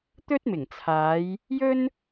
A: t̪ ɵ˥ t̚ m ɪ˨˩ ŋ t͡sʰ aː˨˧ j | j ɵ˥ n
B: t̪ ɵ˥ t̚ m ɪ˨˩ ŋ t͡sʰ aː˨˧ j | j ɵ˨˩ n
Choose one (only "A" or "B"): A